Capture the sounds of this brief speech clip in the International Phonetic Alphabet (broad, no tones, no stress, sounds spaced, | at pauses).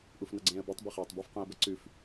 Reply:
ʔ u f n ʌ ɡ͡ǀ ẽː ə̯ b u tˤ b ɛ χ ɐː tˤ b ɔ f q ũ ə̯ b ɐ ǀ ʉ f